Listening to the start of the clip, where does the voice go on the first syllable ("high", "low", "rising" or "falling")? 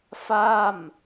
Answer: falling